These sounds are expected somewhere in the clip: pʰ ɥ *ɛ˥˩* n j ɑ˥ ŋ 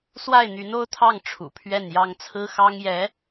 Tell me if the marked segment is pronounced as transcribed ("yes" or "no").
yes